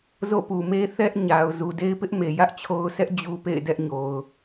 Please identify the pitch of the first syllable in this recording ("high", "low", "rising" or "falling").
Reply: falling